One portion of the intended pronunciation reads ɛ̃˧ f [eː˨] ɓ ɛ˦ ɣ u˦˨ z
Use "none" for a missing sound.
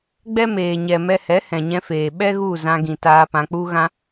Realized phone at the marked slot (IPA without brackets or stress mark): eː˨